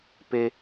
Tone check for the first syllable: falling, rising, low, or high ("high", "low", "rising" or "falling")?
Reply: high